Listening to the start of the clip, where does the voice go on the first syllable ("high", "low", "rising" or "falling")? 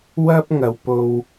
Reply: high